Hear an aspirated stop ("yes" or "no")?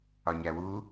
no